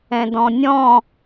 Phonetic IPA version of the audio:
ɛ̃ d ɔ̃ nʲ ɔ̃

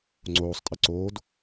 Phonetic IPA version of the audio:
ŋ͡ǀ oː sˤ tʼ ɘ ǀ oː d

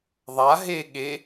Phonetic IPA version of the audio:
ðˤ a ɦ e ɠ e

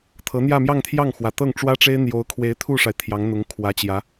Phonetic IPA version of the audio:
t̪ʰ ɤ˧˥ n̪ j ä˥˧ m j ɑ˥˧ ŋ t̪ʰ j ɑ˥˩ ŋ x w ä˨˩ t̪ ɤ˥˩ ŋ ʈ͡ʂ w ä˥ ʈ͡ʂ e˥ ɪ̯ n̪ j o˧˥ ʊ̯ kʰ w e˧˥ ɪ̯ t̪ʰ u˥˩ ʂ a˩ ɪ̯ t̪ʰ j ɑ˧˥ ŋ n̪ ʊ˧˥ ŋ kʰ w ä˧˥ t͡ɕ j ä˧˥

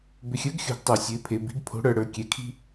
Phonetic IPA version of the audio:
b ʏ˨ xʲ ə˞˨˦ ɡ xʲ o̤˨ ɡ tˤ ə˞˨ sʲ ə˨˦ ɪ̯ pʰ e˨ b i̤˨˦ ɡ pʰ o̤˨˦ ɽ ə˞˨ ɽ ə˞˨ kʲ ɛ˨ kʰ i̤˦

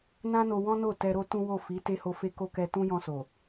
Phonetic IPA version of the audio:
n ã˦ n o˧ w ɔ̃˦ n o˦˨ t ɛ˧ ɾ o˦ t ũ˦ w o˦˨ f i˨˦ t e˦ h o˧ f e˦ k o˦ k ɛ˧ t ũ˦ j ɔ̃˧ s o˨

